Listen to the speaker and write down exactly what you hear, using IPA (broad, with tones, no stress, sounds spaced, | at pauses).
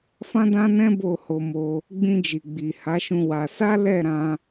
f ã˦ d ã˦ n ɛ̃˦ b o˦˨ h o˧ m o˧ | ɡ͡b ĩ˧ d͡ʒ i˨ ɡ͡b i˨ h a˨˦ ʃ ũ˧ w a˧ s a˦ l ɛ˦˨ ɾ ã˧